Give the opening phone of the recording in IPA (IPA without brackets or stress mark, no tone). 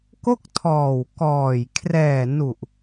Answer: k